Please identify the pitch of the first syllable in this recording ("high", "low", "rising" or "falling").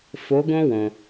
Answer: rising